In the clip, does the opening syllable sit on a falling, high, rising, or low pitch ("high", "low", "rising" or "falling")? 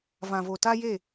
low